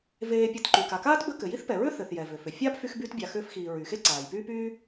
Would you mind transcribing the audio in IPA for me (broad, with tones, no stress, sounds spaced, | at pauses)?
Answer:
v eː˨ pʲ e˨ t ǃ y˩ k a˩ k aː˥ t b ə˦ k ɘ˩ j i˥ θ p ɛ˩ ɹ ʏ˥ θ ɘ˩ θ j ɛ˩ v ʏ˩ f ʏ˩ fʲ a˥ p f y˦ x b yː˦ t bʲ a˨ x ʏː˦ f x iː˨ ɹ y˩ x e˦ ǀ aː˩ j p yː˦ p yː˦